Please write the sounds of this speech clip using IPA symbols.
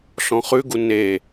ɬ ɔ̃ χ ʉ ɡ u n e

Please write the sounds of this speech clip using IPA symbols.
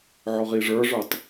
ʕ ɔ ʁ i ʐ ə˞ ʐ ə˞ tˤ

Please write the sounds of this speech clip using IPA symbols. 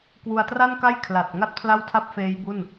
k w u˧ a̯ t r a˥˩ n k a˥˩ j kʰ l a˨˩ t̚ ŋ a˥˩ t̚ pʰ l a˥˩ w tʰ a˥˩ p̚ f eː˦˥ j b u˥˩ n

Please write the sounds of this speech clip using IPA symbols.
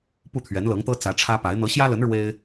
p u˥˩ t̪ʰ ɥ ɛ˧˥ n l ɤ˧˥ ŋ t̪ ɤ˥ t͡s ä˧˥ ʈ͡ʂʰ ä˥ p a˧˥ ɪ̯ n̪ ɤ˧˥ ɕ j ä˥ l ə˧˥ n ɻ w e˥ ɪ̯

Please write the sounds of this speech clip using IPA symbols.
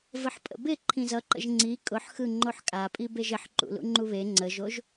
v ə ħ pʼ ə̰ b ɪ ǃʰ ĩ z ʌ ǃ ə̰ ʒ ŋ͡ǀ i kʼ ʊ ħ x ɯ ŋ͡ǃ o ħ kʼ a pʼ i b e ʒ ɪ ħ ǃ ṵ l ṵ ŋ͡ǃ u β e ŋ͡ǀ ə ʒ o ʒ

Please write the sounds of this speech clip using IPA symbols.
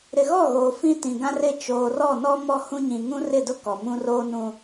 ɾ ɪ˨ ɣ ɔ˦˨ ɣ oː˨ f ĩ˦ t ĩ˨ ɡ ã˦ r ɪ˦˨ t͡ʃ oː˨ r ɔ˦˨ n ɔ˦ m ɔ˦ h ũ˦ ɲ ĩ˨ ŋ ũ˦ r ɪ˦˨ d ʊ˦ k ɔ˨ m ũ˦ r oː˦ n ũ˦

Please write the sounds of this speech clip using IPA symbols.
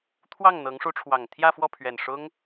t̪ʰ w ɑ˥˩ ŋ n̪ ɤ˧˥ ŋ ʂ u˧˥ ʈ͡ʂʰ w ɑ˨˩ ŋ t̪ʰ j ä˥˧ f w ɔ˥˩ pʰ ɥ ɛ˨˩ n ʂ ʊ˥ ŋ

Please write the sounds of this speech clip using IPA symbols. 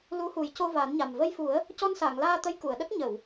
l u˧˥ h u˨˩˦ j c o˧ v a˨˩˦ n ɲ a˨˩ m v ə˧ j f u˨˩˦ ə̯ | c ɔ˧ n s a˨˩˨ ŋ l aː˧ t̪ ə˧˥ j k u˨˩˨ ə̯ ɗ ə˦˥ k̚ ɲ ə˨˩˨ w

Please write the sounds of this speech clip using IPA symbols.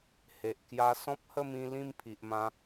h e˨ ʔ k j a˧ s ɔ̃˦ p̚ h ə˥˧ m ĩ˧ l ĩ˥˧ m pʰ i˨ ʔ m ã˧

